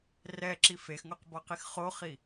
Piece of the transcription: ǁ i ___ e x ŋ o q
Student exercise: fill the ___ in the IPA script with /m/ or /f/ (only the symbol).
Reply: f